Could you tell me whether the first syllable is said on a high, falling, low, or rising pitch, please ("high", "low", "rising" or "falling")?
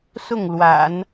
falling